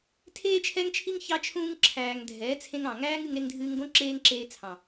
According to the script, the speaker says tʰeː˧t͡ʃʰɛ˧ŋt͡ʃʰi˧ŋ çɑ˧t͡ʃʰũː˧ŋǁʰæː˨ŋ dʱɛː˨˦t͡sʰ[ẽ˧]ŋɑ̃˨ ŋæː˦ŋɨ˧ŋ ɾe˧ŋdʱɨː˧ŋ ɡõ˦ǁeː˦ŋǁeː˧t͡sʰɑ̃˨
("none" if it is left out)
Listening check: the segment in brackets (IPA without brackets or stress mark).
ẽ˧